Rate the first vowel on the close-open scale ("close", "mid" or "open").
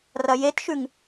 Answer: open